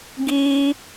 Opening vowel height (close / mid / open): close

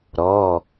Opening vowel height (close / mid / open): mid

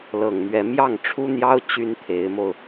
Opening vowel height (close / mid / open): mid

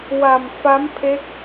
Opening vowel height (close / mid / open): open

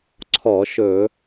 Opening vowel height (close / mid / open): mid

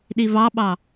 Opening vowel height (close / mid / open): close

